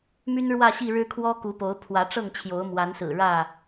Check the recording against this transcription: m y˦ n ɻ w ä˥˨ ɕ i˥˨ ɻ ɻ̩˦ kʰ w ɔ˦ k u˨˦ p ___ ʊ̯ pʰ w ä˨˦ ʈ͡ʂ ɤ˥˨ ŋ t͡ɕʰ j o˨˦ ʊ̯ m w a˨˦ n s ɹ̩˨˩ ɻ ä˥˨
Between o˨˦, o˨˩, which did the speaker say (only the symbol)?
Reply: o˨˦